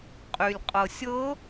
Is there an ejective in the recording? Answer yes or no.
yes